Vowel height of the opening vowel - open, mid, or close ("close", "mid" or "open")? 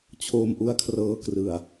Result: mid